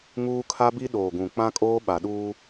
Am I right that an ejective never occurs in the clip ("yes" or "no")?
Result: no